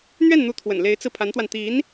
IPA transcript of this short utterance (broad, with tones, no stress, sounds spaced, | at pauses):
n̪ ɥ ɛ˥˩ n n̪ u˧˥ t̪ʰ w ə̰˨˩ n l e˧˥ ɪ̯ t͡s ɹ̩˧ pʰ a˧˥ n t̪ w a˧ n t̪ i˧˥ n